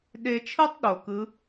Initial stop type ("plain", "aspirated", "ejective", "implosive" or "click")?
implosive